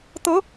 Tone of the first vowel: rising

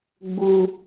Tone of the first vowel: low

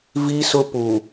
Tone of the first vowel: high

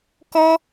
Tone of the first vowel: high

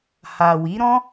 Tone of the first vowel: low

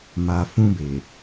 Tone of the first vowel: low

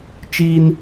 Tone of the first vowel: high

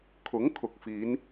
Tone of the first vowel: rising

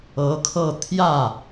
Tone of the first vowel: rising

